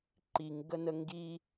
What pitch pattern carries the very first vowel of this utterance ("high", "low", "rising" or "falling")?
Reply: low